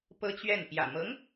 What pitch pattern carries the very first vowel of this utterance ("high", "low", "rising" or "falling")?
high